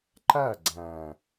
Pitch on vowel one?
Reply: falling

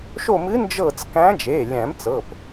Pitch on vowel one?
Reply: falling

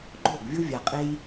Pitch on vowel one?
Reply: falling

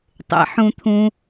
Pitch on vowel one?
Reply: low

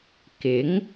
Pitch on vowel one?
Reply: rising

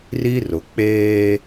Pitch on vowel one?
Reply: high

